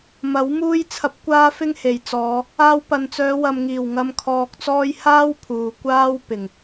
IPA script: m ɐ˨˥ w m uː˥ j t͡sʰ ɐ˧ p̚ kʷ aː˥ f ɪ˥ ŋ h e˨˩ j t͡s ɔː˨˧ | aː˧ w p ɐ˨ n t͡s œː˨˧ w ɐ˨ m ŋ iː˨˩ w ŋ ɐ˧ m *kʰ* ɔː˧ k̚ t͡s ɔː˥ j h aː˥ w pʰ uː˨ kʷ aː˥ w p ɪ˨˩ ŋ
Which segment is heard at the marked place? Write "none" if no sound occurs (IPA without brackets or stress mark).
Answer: kʰ